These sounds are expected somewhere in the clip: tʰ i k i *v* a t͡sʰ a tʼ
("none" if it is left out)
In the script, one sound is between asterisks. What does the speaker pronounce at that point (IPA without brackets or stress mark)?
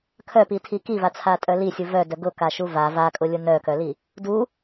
v